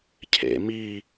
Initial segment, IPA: cʰ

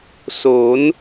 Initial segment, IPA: s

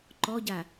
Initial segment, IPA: ǃ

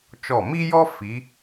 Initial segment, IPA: t͡ʃ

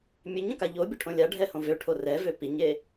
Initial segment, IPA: mʲ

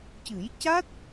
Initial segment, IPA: c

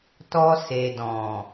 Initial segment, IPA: t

